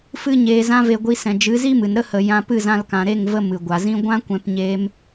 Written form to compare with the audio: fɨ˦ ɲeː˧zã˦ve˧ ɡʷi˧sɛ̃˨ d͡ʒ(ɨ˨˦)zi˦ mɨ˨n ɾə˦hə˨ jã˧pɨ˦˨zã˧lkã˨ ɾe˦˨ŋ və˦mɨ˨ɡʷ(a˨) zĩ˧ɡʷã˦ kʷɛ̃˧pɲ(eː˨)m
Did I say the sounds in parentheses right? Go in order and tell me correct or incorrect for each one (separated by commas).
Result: correct, correct, incorrect